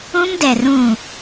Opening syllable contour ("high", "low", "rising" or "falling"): high